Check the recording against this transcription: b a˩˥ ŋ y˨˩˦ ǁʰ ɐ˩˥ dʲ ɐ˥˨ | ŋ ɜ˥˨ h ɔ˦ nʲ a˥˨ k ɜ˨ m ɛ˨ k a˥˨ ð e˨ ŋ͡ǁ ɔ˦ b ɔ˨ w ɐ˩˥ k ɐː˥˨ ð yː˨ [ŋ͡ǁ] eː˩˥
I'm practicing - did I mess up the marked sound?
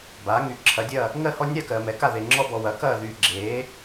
yes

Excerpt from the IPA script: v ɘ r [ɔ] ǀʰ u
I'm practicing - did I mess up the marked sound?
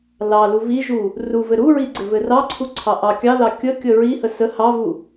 yes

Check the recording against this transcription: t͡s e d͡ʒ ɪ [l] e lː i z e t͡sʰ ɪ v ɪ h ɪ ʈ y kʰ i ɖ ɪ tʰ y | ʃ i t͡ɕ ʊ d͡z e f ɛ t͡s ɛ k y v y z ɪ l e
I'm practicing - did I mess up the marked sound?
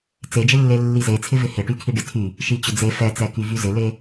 yes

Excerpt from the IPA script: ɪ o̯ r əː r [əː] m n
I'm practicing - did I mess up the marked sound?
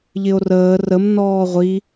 yes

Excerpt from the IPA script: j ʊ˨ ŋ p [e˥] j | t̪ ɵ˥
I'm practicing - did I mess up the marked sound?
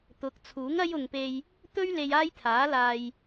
yes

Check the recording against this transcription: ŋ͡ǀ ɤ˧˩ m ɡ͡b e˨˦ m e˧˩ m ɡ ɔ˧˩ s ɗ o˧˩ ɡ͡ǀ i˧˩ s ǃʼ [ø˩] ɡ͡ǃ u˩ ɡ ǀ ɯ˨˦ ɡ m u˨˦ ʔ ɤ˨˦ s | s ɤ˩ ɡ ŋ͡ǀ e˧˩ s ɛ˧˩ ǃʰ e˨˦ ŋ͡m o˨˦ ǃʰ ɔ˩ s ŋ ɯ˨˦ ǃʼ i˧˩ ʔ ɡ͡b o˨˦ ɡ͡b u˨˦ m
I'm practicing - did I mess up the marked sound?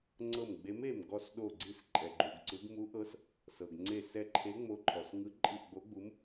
yes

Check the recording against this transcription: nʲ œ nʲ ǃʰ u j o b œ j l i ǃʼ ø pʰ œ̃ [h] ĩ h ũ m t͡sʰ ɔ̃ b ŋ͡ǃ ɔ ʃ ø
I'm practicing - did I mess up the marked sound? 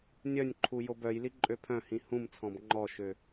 no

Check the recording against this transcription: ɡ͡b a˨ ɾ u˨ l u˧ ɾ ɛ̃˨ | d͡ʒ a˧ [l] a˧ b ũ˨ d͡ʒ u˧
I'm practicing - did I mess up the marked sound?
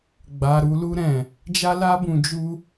no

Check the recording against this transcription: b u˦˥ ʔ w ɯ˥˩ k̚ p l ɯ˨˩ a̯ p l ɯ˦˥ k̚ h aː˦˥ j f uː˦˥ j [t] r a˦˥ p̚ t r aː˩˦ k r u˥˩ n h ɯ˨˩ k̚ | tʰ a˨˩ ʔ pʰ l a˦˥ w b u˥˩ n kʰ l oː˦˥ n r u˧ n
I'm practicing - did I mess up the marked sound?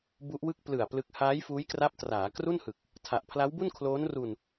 yes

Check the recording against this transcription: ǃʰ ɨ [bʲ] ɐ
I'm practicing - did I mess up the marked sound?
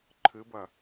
yes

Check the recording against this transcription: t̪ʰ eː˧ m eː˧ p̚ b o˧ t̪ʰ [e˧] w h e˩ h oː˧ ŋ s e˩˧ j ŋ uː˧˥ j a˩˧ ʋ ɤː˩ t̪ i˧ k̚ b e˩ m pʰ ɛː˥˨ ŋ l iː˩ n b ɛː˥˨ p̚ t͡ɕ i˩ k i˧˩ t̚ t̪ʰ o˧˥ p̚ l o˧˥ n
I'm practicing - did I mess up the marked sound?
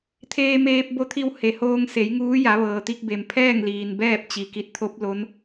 yes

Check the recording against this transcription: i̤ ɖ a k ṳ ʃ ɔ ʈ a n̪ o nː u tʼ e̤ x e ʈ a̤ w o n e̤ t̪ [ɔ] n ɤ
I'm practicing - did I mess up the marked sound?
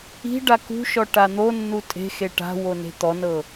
no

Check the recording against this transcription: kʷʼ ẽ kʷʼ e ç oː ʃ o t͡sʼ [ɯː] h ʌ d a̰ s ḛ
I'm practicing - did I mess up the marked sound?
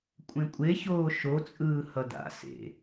no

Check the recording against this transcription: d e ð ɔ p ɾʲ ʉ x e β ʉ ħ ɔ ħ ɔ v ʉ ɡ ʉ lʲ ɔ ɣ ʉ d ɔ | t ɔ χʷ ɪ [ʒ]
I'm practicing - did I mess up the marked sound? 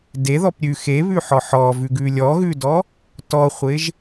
no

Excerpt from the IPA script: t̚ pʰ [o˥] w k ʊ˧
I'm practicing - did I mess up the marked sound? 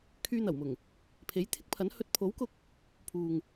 yes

